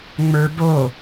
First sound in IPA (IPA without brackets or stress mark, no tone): ŋ͡m